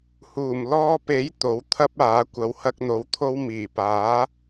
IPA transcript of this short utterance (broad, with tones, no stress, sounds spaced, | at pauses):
h uː˨˩ m l ɔː˧ p e˨˥ j t̪ o˨˥ w t̪ʰ ɐ˥ p̚ aː˨˥ kʷ ɐ˨˧ w h ɐ˧ k̚ n̪ o˨˧ w t̪ʰ o˥ w m iː˨˩ p aː˨˥